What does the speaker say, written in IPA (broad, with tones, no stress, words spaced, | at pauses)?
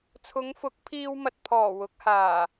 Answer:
t͡sʰʊ˨˧ŋfʊ˨˥k̚pʰiː˧wmɐ˨t̚ pʰɔː˨˩wʊ˨˥k̚haː˨˩